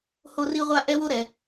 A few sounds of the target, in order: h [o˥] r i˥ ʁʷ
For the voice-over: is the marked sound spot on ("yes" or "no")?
yes